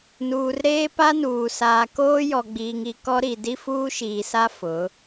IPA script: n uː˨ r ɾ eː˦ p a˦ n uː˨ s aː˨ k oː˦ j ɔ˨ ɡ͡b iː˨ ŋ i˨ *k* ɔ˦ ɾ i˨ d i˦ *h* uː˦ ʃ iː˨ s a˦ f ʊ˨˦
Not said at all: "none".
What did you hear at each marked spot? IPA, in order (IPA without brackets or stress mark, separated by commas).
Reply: k, f